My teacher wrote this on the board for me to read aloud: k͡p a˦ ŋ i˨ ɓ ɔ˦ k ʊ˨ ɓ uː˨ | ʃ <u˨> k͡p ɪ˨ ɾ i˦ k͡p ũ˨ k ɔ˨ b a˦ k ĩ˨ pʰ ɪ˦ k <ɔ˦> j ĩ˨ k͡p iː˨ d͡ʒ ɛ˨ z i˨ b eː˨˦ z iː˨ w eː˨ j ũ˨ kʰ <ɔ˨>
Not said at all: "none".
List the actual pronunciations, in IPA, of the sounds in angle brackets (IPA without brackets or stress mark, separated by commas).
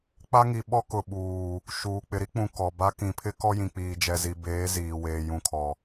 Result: uː˨, ɔ˦, ɔ˨